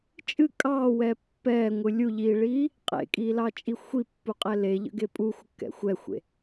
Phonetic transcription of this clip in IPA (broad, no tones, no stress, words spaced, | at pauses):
t͡ʃʼɨ kʼɑːwɛ pːɛːŋʷɨ lʲuʎiːɭiː | qʼḛkʼiːlɑt͡ʃʼi xʷipːuqʼɛ leʎə̰ɡe pʼuxʷəkːɛ̰ xʷɛxʷḛ